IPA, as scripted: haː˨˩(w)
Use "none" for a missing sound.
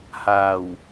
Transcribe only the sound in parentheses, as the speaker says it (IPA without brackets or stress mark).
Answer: w